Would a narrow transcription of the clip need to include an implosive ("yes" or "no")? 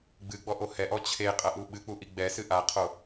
yes